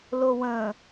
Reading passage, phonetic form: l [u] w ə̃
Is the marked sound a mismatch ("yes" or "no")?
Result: yes